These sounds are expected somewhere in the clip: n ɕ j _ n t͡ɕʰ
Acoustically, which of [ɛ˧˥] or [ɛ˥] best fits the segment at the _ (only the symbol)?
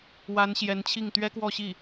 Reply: ɛ˧˥